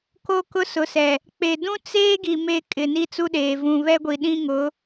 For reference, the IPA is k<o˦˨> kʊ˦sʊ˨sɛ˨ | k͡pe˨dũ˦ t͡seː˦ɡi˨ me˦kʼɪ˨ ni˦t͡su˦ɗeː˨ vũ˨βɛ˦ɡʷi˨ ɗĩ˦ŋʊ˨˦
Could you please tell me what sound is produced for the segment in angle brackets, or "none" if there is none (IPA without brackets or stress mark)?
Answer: o˦